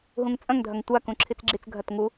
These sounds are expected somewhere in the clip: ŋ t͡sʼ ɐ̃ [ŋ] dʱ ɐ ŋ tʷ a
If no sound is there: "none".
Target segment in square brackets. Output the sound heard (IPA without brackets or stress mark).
ŋ